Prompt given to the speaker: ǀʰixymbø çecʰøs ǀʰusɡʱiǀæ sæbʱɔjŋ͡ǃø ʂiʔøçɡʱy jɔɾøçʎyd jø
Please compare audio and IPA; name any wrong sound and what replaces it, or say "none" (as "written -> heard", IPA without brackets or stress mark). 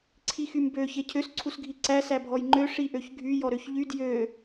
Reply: none